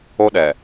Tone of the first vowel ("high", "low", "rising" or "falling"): high